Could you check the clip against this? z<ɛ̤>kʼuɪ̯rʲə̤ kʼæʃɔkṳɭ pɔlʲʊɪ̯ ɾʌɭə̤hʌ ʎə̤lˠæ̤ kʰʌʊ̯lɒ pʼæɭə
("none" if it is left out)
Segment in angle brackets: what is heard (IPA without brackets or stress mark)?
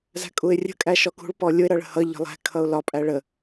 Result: æ̤